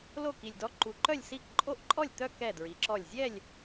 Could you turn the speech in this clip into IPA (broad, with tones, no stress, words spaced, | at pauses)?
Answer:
lo˥˩ki˨˩lʲdɔ˧˥ ǃu˩˧ǃœ˥˩lʲsi˥˩k ǃʼo˥˧ʔǃʼɔ˥˩lʲt̪œ˥˧ kɛ˥˩dɹi˩˧ǁɔ˥˩lʲ zʲɛ˥˩lʲ